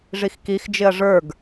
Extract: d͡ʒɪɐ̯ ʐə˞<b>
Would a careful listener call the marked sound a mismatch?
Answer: yes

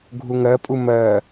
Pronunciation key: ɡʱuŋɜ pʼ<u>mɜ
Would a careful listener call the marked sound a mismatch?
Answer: no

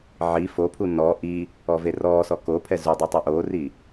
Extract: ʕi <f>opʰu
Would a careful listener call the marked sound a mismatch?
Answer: no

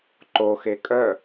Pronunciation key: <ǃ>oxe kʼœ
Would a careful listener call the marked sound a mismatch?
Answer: no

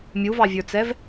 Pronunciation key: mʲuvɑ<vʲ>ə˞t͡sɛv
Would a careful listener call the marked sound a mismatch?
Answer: no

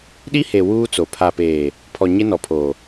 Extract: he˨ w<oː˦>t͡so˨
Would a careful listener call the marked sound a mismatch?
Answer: yes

